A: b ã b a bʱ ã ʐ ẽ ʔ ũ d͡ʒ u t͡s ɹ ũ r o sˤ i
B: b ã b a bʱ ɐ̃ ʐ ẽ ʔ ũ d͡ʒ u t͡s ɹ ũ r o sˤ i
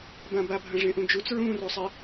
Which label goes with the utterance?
B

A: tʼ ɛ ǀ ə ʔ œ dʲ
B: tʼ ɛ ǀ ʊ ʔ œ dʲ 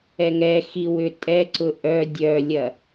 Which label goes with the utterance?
B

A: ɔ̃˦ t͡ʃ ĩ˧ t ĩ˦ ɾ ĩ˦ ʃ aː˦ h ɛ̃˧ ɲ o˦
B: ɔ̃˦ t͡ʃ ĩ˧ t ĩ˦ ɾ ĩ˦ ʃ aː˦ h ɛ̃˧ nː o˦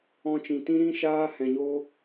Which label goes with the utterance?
A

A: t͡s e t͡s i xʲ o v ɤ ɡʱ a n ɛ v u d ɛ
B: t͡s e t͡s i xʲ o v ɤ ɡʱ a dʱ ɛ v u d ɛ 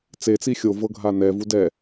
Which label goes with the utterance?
A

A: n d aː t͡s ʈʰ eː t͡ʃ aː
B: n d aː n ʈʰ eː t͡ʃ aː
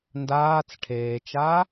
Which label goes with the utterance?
A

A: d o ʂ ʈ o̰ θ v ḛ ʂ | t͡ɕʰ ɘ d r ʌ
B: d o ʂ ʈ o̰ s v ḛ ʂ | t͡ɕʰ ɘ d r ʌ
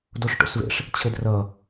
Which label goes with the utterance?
B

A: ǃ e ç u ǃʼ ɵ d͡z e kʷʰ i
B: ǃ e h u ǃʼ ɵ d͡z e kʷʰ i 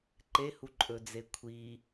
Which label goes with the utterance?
B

